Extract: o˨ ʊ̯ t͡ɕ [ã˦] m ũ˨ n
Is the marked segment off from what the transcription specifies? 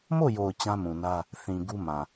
no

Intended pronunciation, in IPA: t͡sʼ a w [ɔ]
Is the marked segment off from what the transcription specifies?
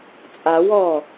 no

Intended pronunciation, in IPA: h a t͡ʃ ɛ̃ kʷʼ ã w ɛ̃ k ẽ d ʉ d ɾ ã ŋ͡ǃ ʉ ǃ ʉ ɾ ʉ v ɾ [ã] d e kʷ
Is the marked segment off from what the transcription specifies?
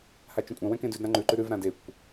no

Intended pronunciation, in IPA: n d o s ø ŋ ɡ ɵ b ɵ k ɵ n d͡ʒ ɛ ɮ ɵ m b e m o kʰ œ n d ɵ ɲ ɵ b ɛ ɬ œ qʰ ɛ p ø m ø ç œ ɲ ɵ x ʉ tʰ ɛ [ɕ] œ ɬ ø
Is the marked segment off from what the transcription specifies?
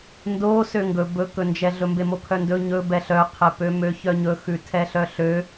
yes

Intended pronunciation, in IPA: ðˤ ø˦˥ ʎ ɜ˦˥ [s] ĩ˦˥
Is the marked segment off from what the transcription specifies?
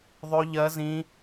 yes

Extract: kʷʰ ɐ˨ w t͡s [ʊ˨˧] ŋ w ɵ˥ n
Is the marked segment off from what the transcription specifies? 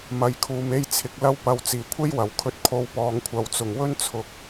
yes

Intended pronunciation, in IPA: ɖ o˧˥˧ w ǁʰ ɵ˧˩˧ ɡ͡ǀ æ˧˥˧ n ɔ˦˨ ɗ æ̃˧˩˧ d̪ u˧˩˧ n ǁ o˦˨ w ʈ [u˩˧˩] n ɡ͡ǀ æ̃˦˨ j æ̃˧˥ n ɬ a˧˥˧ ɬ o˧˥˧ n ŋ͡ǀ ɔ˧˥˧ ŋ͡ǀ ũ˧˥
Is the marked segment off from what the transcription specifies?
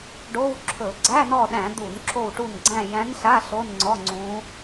yes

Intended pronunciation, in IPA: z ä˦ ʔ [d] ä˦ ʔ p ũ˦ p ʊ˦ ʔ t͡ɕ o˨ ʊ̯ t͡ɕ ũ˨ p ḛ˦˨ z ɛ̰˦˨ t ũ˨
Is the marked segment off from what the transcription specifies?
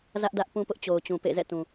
no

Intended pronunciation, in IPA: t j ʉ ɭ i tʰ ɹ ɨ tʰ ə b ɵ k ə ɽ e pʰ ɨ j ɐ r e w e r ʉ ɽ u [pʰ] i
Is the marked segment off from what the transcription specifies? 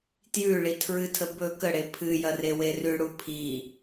no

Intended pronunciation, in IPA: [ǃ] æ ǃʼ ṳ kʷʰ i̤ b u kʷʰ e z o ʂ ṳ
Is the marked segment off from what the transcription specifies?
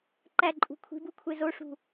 no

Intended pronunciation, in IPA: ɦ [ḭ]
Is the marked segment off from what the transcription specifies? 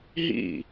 no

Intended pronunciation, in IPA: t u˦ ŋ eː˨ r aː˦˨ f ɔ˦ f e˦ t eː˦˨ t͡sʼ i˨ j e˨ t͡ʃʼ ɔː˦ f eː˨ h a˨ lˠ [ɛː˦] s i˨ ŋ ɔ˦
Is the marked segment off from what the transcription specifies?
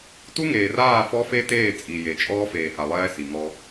no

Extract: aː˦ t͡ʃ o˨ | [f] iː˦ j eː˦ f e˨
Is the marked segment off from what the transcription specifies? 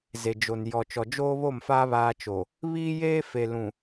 yes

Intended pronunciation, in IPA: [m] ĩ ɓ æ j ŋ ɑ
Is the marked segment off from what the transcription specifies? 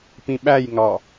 yes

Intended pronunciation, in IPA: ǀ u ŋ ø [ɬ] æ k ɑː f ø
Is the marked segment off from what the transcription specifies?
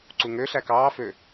no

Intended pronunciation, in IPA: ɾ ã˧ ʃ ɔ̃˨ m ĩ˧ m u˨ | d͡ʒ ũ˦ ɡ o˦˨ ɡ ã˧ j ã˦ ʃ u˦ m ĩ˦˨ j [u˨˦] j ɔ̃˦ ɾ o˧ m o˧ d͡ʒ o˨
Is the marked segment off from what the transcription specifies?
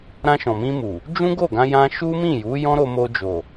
no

